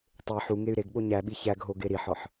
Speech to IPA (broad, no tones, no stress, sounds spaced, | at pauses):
tˤ e ħ u ŋ e y̯ ɾ e ɡ ɓ o ɲ æ ɓ i ç æ ɡ ɦ o ɡ e ɾ i ħ ɒ ħ